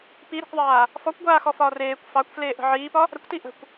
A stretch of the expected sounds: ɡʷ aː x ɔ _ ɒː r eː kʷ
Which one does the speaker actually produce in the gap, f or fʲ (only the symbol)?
f